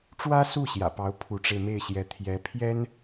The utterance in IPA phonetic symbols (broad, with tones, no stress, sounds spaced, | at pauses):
ʈ͡ʂ w ä˥ s u˥˩ ɕ j ä̰˨˩ p ɑ˧˥ ʊ̯ pʰ u˧˥ ʈ͡ʂ e˧ ɪ̯ m e˥˩ ɪ̯ ɕ j ɛ˧˥ t̪ʰ j ɛ˧˥ pʰ j ɛ˥ n